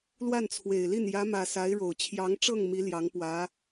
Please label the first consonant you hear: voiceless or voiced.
voiced